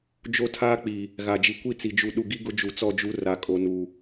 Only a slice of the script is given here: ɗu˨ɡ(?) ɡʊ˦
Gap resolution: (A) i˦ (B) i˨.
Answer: A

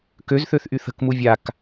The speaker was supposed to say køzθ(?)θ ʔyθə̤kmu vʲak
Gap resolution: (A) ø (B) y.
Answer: A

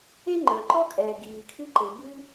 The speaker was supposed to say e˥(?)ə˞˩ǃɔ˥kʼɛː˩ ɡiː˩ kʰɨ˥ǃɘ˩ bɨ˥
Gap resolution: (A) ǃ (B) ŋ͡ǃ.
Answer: B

